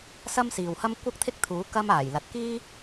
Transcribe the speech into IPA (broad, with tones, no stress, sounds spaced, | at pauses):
s ɐ˥ m s iː˨ w h ɐ˥ m kʷ ɐ˥ k̚ t̪ʰ ɪ˥ k̚ t̪ʰ uː˨˥ k ɐ˥ m aː˨˩ j l ɐ˨ t̚ k iː˥